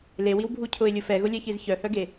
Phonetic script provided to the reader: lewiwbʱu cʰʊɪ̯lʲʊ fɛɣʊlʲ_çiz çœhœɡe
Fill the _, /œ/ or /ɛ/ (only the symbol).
ɛ